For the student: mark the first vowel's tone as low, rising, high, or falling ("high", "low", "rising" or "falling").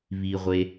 low